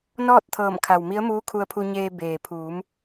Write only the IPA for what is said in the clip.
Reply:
n ɔː˥˨ t̚ t̪ʰ ɤː˧˩ m kʰ a˩ w m i˧˥ ə̯ m uː˧˥ kʰ u˧ ə̯ pʰ u˧ ɲ eː˧ b eː˩ pʰ uː˩˧ m

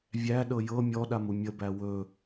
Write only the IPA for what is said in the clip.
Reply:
vʲ æ ɗ ɤ j ɤ mʲ ɔ ɗ a m u mʲ ə b æ w ɵ

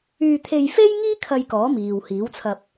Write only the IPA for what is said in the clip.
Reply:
yː˧ t̪ʰ e˧ j f e˥ j ŋ iː˥ kʰ ɐ˧ j k ɔː˨˥ m iː˨ w h iː˨˥ w t͡sʰ ɐ˧ p̚

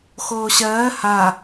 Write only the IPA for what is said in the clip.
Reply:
x oː ɕ ɜː h a

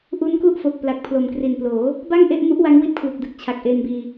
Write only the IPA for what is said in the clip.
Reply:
ʔ u˦˥ n k u˥˩ ʔ f o˨˩ k̚ p l a˨˩ k̚ pʰ l o˨˩ m k r i˨˩ n p l oː˩˦ | b a˥˩ ŋ ʔ e˥˩ ʔ m u˦˥ ʔ w a˦˥ ŋ w i˦˥ t̚ kʰ w u˨˩ k̚ d ɯ˨˩ k̚ t͡ɕʰ a˨˩ k̚ ʔ eː˧ n b iː˧

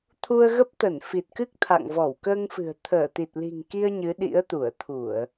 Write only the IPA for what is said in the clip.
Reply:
t̪ʰ u˧ ə̯ ɣ ə˦˥ p̚ t̪ ə˧˩ n f i˨˩ t̚ k ɨ˦˥ k̚ t̪ʰ a̰˧˨ ŋ v ɔ˧˩ w k əː˧ ŋ f ɨ̤˨˩ ə̯ t̪ʰ əː˧˩ t̪ i˨˩ t̚ l i̤˨˩ ŋ k i˧ ə̯ ɲ ɨ˨˦ ɗ ḭ˧˥ ə̯ t̪ u˧˩ ə̯ t̪ʰ u˧˩˨ ə̯

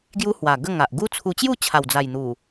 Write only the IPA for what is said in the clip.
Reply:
ɡ j u˦ h w a˨˩ ɡ ə˥˧ ŋ a˨ ʔ ɡ u˦ t͡sʰ u˧ t͡ɕ j u˥˧ t͡ɕʰ a˨˩ w d͡z a˨˩ j n̪ u˨˩

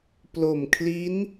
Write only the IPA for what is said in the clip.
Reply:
p l o˨˩ m kʰ l i˦˥ n

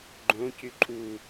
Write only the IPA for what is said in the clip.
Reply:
ɡ͡ǃ õ c y ǃʼ u

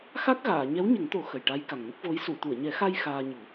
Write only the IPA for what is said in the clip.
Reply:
x a˦˥ k̚ ɣ aː˨˩˨ ɲ ɛ˧˥ w ɲ ə˨˩˦ ŋ t̪ o˨˩˦ x ə˨˩ j ʈ a˧˥ j k a˨˩ ŋ n ə˦˥ k̚ v o˧˥ j s u˨˩˨ t̪ u˨˩˨ ə̯ ɲ ɛ˨˩˦ x a˧ j x aː˧ ɲ u˨˩˦

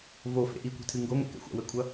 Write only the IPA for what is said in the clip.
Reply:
v o f ḛ ʔ i kʷ e̤ tʰ ɨ ŋ ɡ o ŋ ɛ̰ k ɛ̰ xʷ a̰ w ɘ kʷʰ ɐ

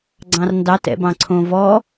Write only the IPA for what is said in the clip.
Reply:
ɡ͡ǀ ɑ̃ r n d ɑ t ɛ̰ b ɑ̃ ǀʰ õ v ɔ

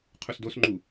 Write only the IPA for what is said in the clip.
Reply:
qʰ u s d o s ŋ͡ǃ u

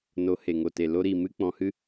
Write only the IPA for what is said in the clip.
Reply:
n o˨˦ h e˨ ŋ o˨ t e˨ l o˦ ɾ i˦˨ m ɨ˦ k͡p ɔ̃˧ h ɨ˦

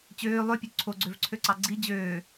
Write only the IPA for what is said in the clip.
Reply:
t͡ɕ øː lˠ ø pʲ ø ǀʰ o ɡ͡ǀ ø v ǀʰ ø ǀ ɑ ɡ͡ǀ i d͡ʑ øː

